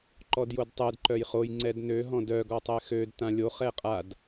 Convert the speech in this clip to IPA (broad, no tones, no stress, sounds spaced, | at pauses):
ǃ ɔ d j o d tˤ ɛ d ǃ œ j χ o j ŋ͡ǀ ɛ d n ø ɦ ɔ̃ d œ ɡ ɔ tˤ ɛ x ø d t ã lʲ o χ ɛ qʼ a d